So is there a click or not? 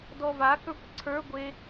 yes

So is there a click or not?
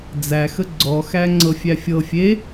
yes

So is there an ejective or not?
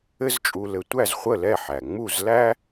yes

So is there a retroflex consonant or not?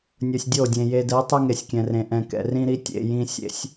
no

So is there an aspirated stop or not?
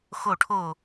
yes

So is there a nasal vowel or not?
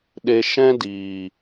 yes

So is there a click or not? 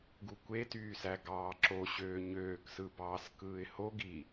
yes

